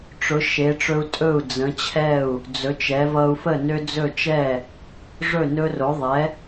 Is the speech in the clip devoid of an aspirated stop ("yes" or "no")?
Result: no